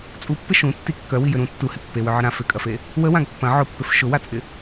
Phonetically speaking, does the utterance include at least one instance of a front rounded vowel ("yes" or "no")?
yes